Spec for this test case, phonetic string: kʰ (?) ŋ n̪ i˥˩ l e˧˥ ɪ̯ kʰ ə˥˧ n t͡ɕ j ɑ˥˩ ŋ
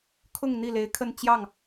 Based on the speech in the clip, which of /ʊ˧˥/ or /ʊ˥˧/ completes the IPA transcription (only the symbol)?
ʊ˥˧